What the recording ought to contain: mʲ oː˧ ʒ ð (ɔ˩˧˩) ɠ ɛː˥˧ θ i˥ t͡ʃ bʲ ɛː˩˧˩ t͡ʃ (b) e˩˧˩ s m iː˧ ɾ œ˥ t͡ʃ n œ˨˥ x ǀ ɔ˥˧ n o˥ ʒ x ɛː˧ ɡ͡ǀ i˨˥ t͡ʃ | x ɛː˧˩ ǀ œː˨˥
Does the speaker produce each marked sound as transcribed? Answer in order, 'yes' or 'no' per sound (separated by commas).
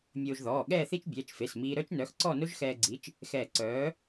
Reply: no, no